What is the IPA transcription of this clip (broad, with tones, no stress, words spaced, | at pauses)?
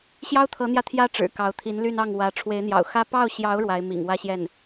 ɕjɑ˥ʊ̯t̪ʰɤ˧˥n̪jä˧ t̪ʰjä˥ʈ͡ʂɻ̩˨˩ kɑ˧˥ʊ̯t̪ʰi˧˥nly˥˧nɑ˥˩ŋ wä˧˥ ʈ͡ʂʰwe˧˥ɪ̯n̪jɑ̰˨˩ʊ̯xä˥ pɑ˥˩ʊ̯ɕjɑ˧˥ʊ̯ ɻwa˧˥ɪ̯mḭ˨˩ŋ wä˥˧ɕjɛ˥˩n